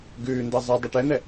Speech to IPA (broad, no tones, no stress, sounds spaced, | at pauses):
ɡ ʉː n d ɤ zˤ e dˤ e ʈ ɛ n̪ ɛ